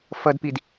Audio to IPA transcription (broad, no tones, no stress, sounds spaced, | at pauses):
f ʌ d p i d